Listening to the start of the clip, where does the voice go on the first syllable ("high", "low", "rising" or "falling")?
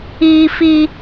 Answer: high